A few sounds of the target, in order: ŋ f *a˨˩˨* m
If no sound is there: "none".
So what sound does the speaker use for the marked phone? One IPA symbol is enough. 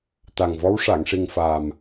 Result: a˨˩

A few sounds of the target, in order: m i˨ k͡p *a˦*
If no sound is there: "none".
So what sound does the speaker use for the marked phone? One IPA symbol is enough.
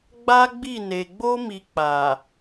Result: a˨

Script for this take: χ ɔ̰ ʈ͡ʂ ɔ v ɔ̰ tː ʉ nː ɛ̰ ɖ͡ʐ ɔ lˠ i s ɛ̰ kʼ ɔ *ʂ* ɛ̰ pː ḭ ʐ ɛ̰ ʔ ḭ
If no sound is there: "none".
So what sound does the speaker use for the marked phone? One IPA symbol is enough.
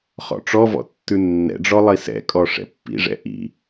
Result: ʂ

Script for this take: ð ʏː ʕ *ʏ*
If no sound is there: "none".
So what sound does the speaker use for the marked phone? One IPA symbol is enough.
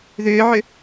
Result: ʏ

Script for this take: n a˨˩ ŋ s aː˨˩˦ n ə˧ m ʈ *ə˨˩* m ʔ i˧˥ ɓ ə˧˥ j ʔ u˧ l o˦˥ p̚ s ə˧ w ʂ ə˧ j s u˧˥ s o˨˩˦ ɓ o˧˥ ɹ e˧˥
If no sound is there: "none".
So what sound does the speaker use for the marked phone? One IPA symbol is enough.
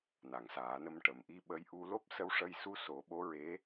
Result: ə˨˩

